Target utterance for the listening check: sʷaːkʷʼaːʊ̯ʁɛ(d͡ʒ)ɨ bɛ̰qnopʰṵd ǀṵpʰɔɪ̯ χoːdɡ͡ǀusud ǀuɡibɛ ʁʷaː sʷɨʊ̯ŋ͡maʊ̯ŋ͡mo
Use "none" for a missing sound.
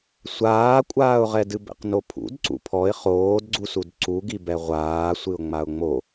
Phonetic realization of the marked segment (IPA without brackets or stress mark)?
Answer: d